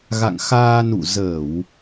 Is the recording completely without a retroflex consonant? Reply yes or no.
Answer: yes